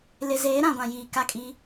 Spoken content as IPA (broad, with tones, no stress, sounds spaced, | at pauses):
l ɪ˨ z eː˨˦ ɾ ã˨ ɡʷ ã˨ j iː˨ k a˦˨ kʼ i˦